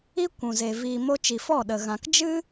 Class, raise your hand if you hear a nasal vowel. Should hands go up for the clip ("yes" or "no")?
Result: yes